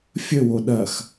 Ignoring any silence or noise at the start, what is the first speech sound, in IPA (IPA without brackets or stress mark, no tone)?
fʲ